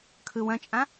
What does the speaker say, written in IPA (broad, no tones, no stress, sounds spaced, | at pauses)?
kʰ ɯ w ɐ̃ t͡ʃʼ ã